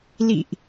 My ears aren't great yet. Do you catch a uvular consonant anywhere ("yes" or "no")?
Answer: no